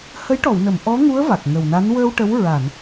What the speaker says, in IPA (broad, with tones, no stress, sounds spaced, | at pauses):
h ə˧˥ j ʈ ɔ˨˩˨ w n ə˨˩˨ m ʔ ɔ˧˥ ŋ u˧˥ ə̯ v a˨˩ k̚ ŋ ə˨˩ w n a˧˥ n w əː˧ w ʈ ə˧˥ w ɹ a˨˩˨ n